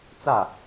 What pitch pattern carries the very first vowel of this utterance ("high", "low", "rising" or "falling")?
falling